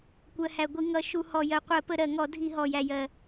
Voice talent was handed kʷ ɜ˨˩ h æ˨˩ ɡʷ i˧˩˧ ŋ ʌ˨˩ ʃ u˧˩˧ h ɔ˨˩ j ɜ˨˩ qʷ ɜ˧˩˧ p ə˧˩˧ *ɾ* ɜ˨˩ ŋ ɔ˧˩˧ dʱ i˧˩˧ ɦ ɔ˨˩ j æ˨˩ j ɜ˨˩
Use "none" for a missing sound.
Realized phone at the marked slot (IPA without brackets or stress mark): ɾ